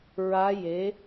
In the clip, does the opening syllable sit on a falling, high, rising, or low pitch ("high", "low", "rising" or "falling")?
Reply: rising